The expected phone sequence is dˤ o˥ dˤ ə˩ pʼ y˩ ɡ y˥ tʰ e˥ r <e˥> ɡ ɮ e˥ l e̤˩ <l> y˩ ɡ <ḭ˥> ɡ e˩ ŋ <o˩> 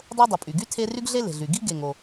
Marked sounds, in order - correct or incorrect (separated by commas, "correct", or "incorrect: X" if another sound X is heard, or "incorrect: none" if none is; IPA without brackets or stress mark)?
incorrect: y˥, incorrect: ɮ, incorrect: i˥, correct